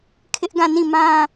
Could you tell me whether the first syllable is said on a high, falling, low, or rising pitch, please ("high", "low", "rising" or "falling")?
high